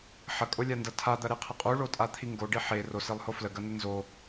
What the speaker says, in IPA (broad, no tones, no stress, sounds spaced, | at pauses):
ħ ɐ kʼ o lʲ a n d ɐ tʰ a d̪ ɐ ɾ e qʰ ɐ qʼ u ɭ o tʼ a t̪ʰ i ŋ ɡ o ɖ i ħ e r o s e lˠ h o f l ə ɡ ɐ n ə n z o